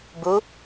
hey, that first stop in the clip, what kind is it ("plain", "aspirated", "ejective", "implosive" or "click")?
plain